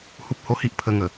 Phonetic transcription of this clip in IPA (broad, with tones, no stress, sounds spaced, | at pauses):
h u˦ p̚ h o˦ h i˦ ʔ pʰ ə˧ ŋ ə˨˩